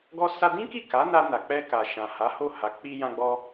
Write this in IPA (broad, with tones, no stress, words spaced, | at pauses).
ɡɔ˧sa˧dĩ˦ki˦˨ ka˨˦na˧ na˨k͡pɛ˧ka˨ ʃã˨ha˨˦ho˦˨ha˨˦ k͡pi˧jã˧ɡ͡bɔ˧